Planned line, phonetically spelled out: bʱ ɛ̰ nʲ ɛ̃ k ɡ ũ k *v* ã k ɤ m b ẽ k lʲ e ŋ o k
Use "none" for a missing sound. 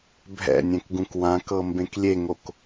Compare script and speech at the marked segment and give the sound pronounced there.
w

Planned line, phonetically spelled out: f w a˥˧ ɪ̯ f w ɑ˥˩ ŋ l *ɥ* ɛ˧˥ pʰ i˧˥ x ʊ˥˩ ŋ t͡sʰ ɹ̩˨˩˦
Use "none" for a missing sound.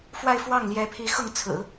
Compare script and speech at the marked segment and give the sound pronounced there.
j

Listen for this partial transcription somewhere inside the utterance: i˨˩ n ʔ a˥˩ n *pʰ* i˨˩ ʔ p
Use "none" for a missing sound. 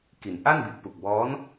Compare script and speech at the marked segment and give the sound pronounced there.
b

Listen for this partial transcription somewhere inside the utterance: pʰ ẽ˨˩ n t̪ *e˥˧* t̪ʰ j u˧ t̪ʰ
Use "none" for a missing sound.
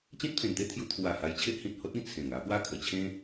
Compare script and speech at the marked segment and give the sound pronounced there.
e˥˧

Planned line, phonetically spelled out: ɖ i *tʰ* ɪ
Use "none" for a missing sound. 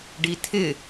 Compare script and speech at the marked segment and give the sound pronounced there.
tʰ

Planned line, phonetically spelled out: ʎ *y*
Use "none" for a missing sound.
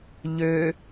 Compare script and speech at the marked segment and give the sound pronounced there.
ø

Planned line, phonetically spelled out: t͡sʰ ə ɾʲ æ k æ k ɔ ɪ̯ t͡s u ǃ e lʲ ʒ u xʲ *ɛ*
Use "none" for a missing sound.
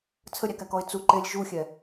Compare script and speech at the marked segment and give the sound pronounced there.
ɛ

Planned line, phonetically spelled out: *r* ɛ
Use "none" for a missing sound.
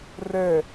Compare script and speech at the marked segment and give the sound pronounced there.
r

